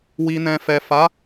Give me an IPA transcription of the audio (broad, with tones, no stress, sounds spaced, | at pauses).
w i˨ n ɛ̃˨ f ɛ˨ f a˨˦